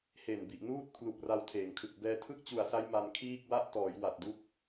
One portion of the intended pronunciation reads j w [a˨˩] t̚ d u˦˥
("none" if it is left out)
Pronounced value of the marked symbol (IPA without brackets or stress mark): a˨˩